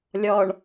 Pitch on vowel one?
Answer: low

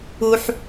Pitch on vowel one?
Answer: high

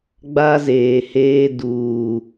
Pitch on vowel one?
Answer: high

